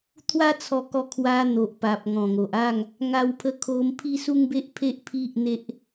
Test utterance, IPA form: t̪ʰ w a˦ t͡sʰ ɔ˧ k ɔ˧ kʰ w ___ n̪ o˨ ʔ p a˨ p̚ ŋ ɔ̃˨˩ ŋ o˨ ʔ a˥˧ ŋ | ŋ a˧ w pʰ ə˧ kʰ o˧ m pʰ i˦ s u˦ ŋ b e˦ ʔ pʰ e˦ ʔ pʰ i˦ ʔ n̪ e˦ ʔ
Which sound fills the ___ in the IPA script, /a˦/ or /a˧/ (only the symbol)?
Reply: a˧